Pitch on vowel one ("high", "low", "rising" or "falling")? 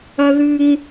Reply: high